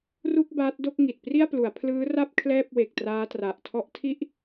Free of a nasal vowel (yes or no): yes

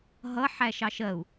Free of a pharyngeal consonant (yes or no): no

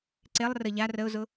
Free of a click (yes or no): no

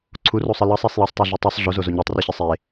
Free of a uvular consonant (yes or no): yes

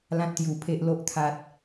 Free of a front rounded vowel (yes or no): yes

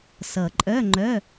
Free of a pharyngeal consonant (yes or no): yes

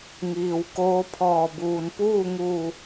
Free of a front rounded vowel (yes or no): yes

